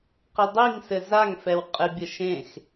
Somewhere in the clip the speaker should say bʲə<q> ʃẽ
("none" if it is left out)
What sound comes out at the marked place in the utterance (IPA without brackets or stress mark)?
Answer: none